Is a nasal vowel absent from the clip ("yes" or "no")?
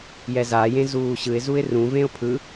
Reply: no